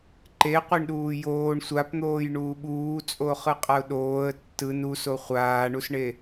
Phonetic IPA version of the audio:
ǃ e qʷ i ɳ ɗ uː j oː ɳ sʷ a p n̪ oː j ɳ uː ɓ uː t͡sʼ o χ ɯ qʼ a ʊ̯ ɗ oː ə̯ tː ɯ n u s o χʷ aː ɳ u s ɳ e

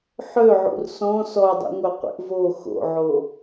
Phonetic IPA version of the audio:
ħ ø ʕ ṵ r s ɔ̃ s ɔ dˤ ḭ ŋʷ œ qʷ ḭ ʔ v o x o̰ ʕ o

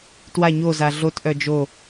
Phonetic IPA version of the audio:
t w a ɲ o z a ɮ o t ʔ œ d͡ʒ o

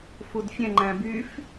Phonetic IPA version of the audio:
f u d fʲ ɛ̃ ŋ͡ǃ æ̃ b y f

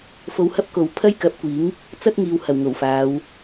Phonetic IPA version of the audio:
f o˧ w h ɐ˥ p̚ k o˨ w pʰ ɐ˥ j k ɐ˨˥ p̚ kʷ iː˨˥ ŋ | t͡s ɐ˥ t̚ ŋ iː˨ w h ɐ˨˩ w ŋ o˨˩ w f aː˨˧ w

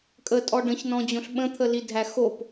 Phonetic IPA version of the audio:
kʼ ə tʼ ɔ ɖ ə̃ ç n ɔ̃ d͡ʑ õ ɬ ɓ ə̃ t̪ʰ ə l i dʱ æ x o p

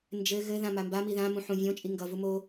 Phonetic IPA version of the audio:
n d͡ʒ ɘ ɣ ɘ ð ã m a m b a m i ð ã m ũ ħ ũ vʲ õ t͡ʃʼ i ŋ ɡ ʌ v u m o

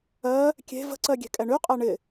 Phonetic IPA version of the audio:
ɜ | kʲ e̤ v ə̤ ǀ ɜ ɡʲ e̤ kʼ ɛ ɳ y qʼ ɜ ɳ ɪ

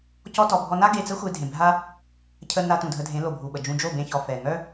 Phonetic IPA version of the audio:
c ɔ˧ t ɔ˨ bʱ ɔ˧ n a˦ ɡ e˧ t͡s ə˦ xʷ e˧ dʱ ẽ˨ bʱ a˦ | cʰ ə˧ n a˧ t ũ˨ dʱ ə˧ dʱ ẽ˨˦ l o˨ bʱ u˨ ɓ ə˨ d͡ʒ ũ˧ d͡ʒ o˦˨ b ẽ˧ ç ɔ˨ f ɛ˨ ŋ œ˦

